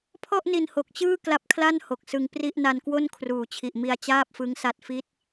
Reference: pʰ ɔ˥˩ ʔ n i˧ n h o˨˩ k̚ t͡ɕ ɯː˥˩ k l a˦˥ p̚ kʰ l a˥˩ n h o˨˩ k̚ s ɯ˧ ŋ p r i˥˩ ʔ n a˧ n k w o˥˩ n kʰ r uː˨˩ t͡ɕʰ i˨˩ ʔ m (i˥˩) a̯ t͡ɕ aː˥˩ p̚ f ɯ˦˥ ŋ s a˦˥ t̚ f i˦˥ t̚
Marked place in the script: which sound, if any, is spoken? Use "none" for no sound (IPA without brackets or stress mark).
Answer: i˧